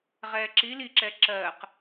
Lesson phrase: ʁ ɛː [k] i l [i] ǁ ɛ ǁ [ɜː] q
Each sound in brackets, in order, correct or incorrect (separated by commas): incorrect, correct, correct